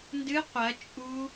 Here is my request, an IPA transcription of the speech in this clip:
n d ɨ qʷ ɐ t͡ʃʼ u

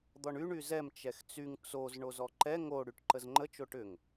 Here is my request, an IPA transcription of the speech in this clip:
d̪ ɔ ɳ y ɳ y z ɛ m t͡ʃ ɛ x t͡s y ŋ t͡s o z ɳ o z ɔ ǃ ɛ ŋ o ɽ y ʈ ǃ ə z ŋ͡ǃ ə t͡ʃ o ʈ ʏ ŋ

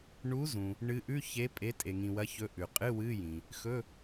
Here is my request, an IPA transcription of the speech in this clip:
ɳ u˨˦ z ũ˩ | ɳ ɨ˨˦ ʔ ʉ˧˥˧ ç e˨˦ pʼ e˨˦ tʼ e˩ ŋ ĩ˩ w ɐ˨˦ ç ɵ˨˦ ʔ ʉ˩ qʼ ɨ˧˥˧ w ɨ˧˥˧ j ĩ˩ | x ɵ˧˥˧

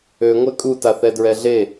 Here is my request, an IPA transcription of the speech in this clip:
ø ŋʷ ɛ kʼ u t a θ ɛ d ɹ ɛ ɮ e

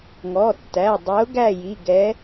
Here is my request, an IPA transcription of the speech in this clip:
ŋ ɔ˩˧˩ tː æ˩˧˩ dˤ ɵ˨˥ ʊ̯ ɡ æ˥˨ j i˩˧˩ ɡ ɛ˨˥

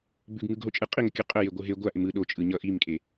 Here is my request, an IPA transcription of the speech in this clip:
b ʉ ɡ ŋ ɯ ɡ ɦ o t͡ʃʼ ɯ qʼ i ŋ ə kʲ ʉ qʼ ə j e ɡʷ ɯ ɦ e ɡʷ a ʔ ɪ m ɯ ɗ o t͡ʃʼ ɯ ɲ ʌ ʔ i m kʼ e

